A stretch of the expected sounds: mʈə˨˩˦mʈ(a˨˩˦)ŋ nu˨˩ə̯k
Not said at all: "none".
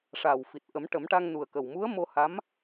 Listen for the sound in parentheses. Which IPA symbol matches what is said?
a˧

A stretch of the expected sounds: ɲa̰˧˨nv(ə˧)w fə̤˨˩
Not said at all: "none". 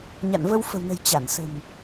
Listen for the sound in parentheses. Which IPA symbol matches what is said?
ə˧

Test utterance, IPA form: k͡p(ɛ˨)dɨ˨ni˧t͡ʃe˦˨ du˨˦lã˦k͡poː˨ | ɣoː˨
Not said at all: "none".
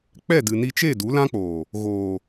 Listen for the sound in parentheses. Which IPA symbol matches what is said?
ɛ˦˨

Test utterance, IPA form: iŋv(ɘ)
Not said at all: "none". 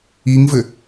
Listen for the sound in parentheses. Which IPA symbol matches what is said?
ɘ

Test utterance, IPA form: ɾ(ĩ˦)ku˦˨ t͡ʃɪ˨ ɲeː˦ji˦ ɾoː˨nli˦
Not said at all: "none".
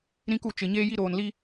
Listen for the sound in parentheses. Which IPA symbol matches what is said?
ĩ˦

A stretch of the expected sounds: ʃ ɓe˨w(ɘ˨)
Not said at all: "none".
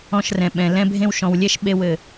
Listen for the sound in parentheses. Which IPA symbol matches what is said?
ɘ˨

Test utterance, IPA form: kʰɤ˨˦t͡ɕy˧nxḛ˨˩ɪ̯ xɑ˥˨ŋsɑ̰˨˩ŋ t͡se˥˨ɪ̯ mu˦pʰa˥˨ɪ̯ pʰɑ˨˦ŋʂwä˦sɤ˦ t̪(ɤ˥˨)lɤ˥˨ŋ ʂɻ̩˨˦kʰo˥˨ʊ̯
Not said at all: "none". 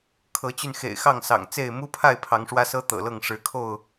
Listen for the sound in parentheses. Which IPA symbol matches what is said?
ɤ̰˨˩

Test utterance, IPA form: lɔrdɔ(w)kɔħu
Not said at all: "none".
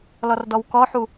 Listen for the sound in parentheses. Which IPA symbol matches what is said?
w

